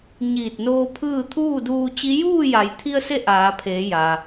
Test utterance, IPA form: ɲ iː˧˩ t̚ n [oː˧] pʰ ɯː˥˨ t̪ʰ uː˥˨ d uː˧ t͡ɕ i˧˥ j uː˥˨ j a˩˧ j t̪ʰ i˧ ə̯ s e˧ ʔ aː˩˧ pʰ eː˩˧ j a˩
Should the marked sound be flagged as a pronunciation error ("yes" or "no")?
no